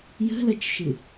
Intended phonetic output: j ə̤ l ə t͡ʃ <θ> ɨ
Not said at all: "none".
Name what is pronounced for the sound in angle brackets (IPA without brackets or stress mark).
ʃ